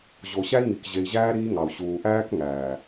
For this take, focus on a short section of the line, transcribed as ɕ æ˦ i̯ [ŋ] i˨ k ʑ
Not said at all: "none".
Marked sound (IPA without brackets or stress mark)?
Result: ŋ